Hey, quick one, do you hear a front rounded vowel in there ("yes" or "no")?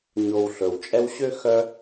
yes